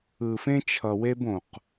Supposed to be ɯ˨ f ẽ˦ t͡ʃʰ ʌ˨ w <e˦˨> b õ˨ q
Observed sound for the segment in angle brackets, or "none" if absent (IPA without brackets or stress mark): e˦